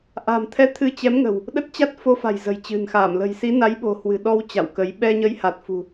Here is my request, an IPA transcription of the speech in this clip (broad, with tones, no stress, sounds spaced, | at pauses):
ʔ a̤˨˩ m t̪ʰ ɛ˧ t̪ʰ ɨ˧ t͡ɕ ɛ˨˦ m ŋ ə̤˨˩ w | ɗ ə˦˥ t̚ t͡ɕ a˦˥ t̚ f o˧ f a̤˨˩ j z ə̤˨˩ j t͡ɕ ɨ̤˨˩ n x a˧˩ m l ə̤˨˩ j s i˨˦ n a˨˦ j ɓ o̤˨˩ h w ɨ̤˨˩ ɗ ɔ˧ w t͡ɕ a̰˧˨ w k ə˨˦ j ɓ ɛ˧ ɲ ə˨˦ j h a˨˩ t̚ f ṳ˨˩